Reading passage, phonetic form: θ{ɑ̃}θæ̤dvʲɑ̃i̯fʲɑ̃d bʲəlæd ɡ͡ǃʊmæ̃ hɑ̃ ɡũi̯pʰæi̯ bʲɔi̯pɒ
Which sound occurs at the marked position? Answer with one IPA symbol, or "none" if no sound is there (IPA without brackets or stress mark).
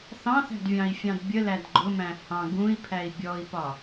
ɑ̃